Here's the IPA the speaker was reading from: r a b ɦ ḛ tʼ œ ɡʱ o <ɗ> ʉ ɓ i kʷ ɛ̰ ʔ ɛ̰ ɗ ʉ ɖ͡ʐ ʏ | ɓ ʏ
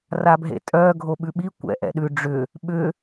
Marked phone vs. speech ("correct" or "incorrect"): incorrect